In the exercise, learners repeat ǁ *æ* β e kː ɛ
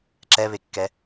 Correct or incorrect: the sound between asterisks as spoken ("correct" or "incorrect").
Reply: incorrect